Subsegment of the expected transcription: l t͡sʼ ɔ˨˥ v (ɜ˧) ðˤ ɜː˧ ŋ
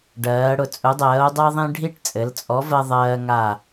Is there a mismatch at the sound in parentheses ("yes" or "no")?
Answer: no